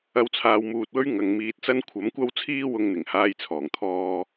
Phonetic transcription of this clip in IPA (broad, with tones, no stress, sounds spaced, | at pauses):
ɐ˨˧ w t͡sʰ aː˨ w m uː˨ t̚ w ɵ˥ ɥ ŋ ɐ˨˧ ŋ m iː˧ t̚ t͡s ɐ˥ n kʷʰ ɐ˨˥ m kʷ ɐ˥ w t͡sʰ iː˥ w ʊ˧ ŋ n̪ ɪ˨˩ ŋ h aː˧ j t͡sʰ ɔː˨˩ ŋ t̪ʰ ɔː˧